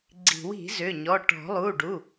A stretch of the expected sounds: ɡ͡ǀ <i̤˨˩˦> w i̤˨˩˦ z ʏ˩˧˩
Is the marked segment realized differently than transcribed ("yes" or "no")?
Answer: no